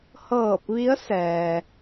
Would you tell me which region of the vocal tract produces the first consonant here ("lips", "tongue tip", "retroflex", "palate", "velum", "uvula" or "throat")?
throat